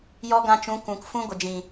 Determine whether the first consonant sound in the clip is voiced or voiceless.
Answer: voiced